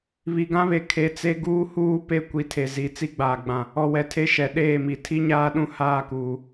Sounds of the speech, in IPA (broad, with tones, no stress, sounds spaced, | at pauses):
β i˨ ɡ ã˦ β e˨ kʰ e˨ t͡s e˦ ɡ uː˦ h uː˦ p e˦ kʷ i˨ tʰ e˨ z i˨ t͡s i˦ ɡ͡b aː˨ ɡ͡b ã˨ | ɔ˨ w ɛ˨ tʰ e˦ ʃ ɛ˨ ɗ eː˦˨ m i˨ tʰ i˦ ɲ aː˦ ɗ ũ˦ h aː˦˨ k uː˨